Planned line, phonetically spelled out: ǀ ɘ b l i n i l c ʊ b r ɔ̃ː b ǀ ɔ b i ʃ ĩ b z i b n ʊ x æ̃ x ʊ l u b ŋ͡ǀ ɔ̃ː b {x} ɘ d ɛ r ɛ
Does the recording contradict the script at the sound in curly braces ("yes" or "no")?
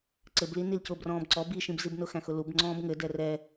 yes